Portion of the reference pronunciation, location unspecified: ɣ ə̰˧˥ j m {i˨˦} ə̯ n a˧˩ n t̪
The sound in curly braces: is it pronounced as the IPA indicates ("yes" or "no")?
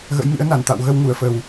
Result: no